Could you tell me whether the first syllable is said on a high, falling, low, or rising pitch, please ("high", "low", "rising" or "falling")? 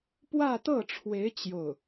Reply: falling